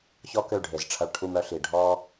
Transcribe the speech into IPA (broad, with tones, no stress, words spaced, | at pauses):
çɔ˦kø˦˨ ɖʱe˨zʈ͡ʂʰɐ˧ɭ ʈʰu˧mœ˧ɬi˨ ɖʱɔ˦